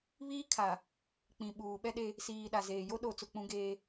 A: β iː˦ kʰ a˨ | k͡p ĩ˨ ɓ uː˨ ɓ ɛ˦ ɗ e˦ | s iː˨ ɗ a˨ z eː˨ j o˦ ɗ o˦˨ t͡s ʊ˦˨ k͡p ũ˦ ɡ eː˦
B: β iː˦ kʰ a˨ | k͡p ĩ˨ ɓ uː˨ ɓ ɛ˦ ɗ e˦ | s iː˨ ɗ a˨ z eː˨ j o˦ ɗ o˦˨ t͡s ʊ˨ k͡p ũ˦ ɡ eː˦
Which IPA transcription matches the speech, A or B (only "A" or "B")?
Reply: A